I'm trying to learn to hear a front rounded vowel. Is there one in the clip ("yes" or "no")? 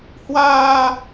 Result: no